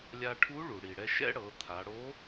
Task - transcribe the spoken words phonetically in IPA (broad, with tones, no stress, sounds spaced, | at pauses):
lʲ a˧ ʈʰ u˧˥ ɭ u˩ ɽ i˩ ɽ ɛ˧ ʃ ɛ̰˥ ɽ ɤ˩˧ t̪ʰ a˩˧ ɽ o˧˥